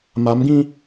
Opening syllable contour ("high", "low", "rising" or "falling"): rising